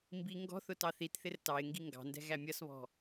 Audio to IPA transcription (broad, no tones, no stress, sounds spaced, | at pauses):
m b i ŋ ɡ ɔ̤ θ ʊ t ɑ θ i t θ ɪ r t ɑ ɪ̯ ŋ ɡ i ŋ ɡ ɑ̤ n d ɛ̤ ɣ æ mʲ ʌ s β ɔ̤